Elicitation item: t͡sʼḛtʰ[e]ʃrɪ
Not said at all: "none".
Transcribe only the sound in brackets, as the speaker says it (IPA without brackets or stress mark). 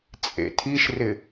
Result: i